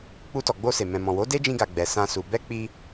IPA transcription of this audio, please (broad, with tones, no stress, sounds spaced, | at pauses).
k͡p u˧ t ɔ˨ ɡ͡b o˧ s e˨ m ɛ̃˨ m ɔ̃˨ w o˨˦ d e˦ d͡ʒ ĩ˧ ɡ a˨ ɡ͡b ɛ˨ s ã˧ s u˨ b ɛ˧ k͡p i˧